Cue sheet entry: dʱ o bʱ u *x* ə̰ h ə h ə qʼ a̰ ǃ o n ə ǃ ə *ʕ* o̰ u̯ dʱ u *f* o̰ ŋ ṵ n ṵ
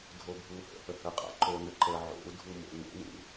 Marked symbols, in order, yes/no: no, yes, no

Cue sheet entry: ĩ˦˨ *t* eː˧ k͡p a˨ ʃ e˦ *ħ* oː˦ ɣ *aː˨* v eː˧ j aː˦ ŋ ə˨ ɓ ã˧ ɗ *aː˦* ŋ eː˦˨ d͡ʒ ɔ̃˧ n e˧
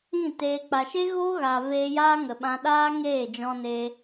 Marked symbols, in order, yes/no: yes, no, yes, yes

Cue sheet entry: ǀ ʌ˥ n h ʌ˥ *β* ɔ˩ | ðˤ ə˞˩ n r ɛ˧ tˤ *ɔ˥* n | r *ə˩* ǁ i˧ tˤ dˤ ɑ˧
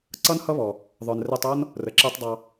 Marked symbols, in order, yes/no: yes, yes, yes

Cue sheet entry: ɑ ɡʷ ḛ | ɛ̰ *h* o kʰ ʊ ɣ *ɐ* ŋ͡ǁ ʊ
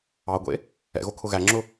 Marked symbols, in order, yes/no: no, no

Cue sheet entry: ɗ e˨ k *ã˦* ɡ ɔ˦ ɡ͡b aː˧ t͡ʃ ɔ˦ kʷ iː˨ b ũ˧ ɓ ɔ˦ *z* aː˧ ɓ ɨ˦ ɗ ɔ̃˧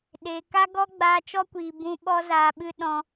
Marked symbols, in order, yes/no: no, yes

